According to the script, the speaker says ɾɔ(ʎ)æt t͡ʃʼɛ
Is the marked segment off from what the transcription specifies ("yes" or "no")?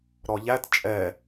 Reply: no